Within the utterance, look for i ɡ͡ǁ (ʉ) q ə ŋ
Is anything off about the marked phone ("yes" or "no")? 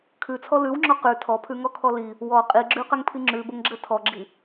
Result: no